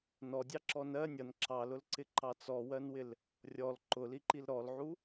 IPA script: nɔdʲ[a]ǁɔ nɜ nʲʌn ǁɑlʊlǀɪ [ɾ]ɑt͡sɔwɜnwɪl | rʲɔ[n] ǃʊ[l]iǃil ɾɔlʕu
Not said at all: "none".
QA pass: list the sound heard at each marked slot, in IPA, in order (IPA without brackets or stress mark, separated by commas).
ɑ, ǃ, l, l